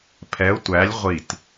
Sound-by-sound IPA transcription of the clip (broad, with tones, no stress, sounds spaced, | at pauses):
pʰ ɛ˧˥ ʊ̯ tʷ æ˧˥ lʲ ʁʷ i˧˩ t